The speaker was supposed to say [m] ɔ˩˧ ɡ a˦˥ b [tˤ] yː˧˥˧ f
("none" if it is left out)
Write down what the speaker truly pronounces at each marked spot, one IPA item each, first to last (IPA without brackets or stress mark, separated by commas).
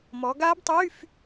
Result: m, tˤ